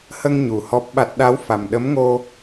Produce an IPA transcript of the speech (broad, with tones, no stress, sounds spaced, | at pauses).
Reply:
h ə˧ ŋ ɲ u˨˩ h ɔ˦˥ p̚ ɓ a˦˥ t̚ ɗ a˧˥ w f a˨˩ m ɗ ə˧˥ m ŋ o˧